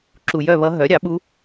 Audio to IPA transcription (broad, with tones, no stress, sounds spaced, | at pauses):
ǁ u˨ j œ˥˨ β ʌ˧˥ ɦ œ˩˥ ɾʲ ɑ˩˥ ɓ u˧˥